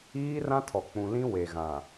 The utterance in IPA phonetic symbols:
iː˦rã˦ tʰɔ˨ k͡pũ˨lĩ˦ we˨ɣã˨

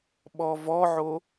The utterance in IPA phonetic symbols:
ɓɔvɔʕo

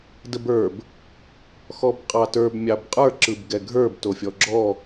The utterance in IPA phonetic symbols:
dəbə˞b | xɔbqʼɑtə˞b mʲɑbqʼə˞ ǁɯbɡɛɡʱə˞b tofʲɔɡ͡ǁɔ

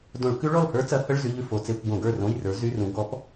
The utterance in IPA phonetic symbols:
dõ˧˩˧ɭkʉ˦˥ɭɔ˥˨lhə˞˦˥ t͡sɐ˨˥hə˧˥˧ɭ zy˧˥˧ʎʉ˥˨ fo˧˩˧t͡se˧˥˧kʷɡõ˧˩˧ɡə˞˥˨ rõ˧˥˧jrə˞˨˥ zy˧˥˧rũ˨˥ ɡɔ˨˥p

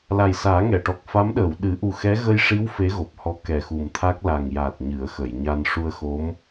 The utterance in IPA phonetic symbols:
la˨˩jsaː˨˩˦ ŋɛ˨˩˨ʈɔ˨˩k̚fa˧˥m ɗəː˨˩˨wɗɨ˨˩˦ ʔu˨˩xɛ˧˥ ɣə˧jʂi˧˥w fe˧˥ɣo˨˩p̚hɔ˧˥ kɛ˨˩xu˨˩mt̪ʰa˦˥k̚ la˨˩ŋja˨˩t̚ ɲɨ˨˩˦ə̯xə˨˩˨jɲa˧n ʂu˧ə̯xo˧˥m

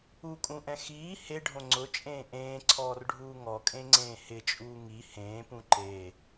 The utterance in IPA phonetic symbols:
ukʼũʔɛ̃ xiː heɖʱõ ŋ͡ǀʊt͡ʃʼẽː ʔẽːǀʰɔːrɖʱuː ŋɔkʼẽŋ͡ǀẽː hɪt͡ʃʼuː ŋi hẽːpũ ǃe

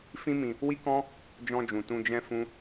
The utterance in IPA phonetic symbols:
fĩ˦ mĩ˧ | wi˦kɔ̃˦ | d͡ʒɔ̃˧d͡ʒũ˨ tũ˧d͡ʒɛ̃˦ fũ˦

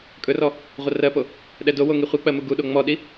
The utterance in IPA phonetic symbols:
kʼɵrɔ | ʁʷərɜpo | ɗɛdowo ŋiχʷik͡pɜ muɡuɗo ŋ͡mɔɗi

